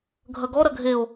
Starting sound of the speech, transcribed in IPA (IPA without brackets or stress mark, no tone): ɡʱ